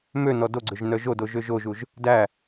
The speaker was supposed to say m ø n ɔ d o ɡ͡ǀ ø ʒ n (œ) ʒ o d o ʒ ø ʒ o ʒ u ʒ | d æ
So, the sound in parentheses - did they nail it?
yes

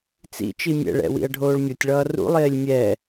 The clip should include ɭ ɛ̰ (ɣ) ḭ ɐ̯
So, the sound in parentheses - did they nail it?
no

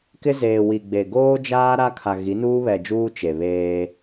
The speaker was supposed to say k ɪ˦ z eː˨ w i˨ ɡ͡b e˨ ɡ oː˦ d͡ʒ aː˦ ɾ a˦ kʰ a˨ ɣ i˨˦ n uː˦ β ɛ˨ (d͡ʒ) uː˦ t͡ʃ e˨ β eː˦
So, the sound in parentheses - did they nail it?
yes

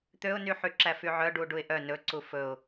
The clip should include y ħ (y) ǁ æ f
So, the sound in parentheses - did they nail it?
yes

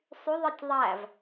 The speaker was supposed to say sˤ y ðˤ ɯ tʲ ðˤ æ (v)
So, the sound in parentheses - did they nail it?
yes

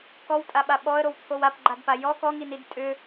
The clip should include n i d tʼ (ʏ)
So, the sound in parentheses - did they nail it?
yes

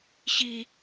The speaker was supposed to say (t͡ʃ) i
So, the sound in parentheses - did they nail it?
no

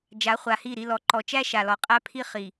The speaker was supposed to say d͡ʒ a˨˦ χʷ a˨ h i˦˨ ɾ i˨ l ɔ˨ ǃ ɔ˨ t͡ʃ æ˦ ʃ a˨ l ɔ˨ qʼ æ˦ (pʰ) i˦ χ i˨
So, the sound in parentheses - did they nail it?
yes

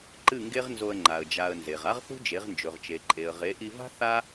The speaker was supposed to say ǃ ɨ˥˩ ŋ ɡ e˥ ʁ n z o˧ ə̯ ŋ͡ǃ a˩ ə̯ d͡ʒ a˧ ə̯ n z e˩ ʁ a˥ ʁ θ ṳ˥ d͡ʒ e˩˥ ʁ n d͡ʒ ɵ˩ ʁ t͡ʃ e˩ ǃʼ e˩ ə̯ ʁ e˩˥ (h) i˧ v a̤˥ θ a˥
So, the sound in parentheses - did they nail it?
no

